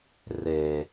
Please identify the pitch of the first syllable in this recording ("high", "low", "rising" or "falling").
low